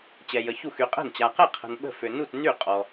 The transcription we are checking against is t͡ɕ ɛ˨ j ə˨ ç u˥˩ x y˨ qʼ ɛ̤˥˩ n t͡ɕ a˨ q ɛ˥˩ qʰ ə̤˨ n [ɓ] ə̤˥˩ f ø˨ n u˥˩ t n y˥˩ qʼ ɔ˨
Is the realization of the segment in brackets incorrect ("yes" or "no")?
no